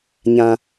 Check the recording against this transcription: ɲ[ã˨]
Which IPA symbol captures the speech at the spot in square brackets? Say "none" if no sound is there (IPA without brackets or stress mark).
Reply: ã˨